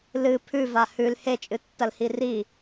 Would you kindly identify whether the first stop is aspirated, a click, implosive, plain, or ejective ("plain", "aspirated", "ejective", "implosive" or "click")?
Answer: aspirated